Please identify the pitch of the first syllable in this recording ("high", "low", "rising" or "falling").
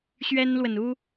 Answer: high